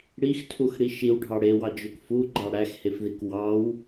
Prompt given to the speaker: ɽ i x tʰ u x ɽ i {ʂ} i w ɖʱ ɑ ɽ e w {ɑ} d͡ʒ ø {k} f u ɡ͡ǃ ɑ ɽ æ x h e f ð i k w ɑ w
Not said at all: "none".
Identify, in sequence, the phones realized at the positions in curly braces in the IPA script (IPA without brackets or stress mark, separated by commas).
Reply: ʃ, ɑ, k